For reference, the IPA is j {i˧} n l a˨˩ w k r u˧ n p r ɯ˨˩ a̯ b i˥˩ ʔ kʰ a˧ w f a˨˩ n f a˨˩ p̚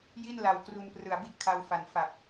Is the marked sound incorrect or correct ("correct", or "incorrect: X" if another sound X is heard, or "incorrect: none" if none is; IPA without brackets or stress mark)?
incorrect: i˥˩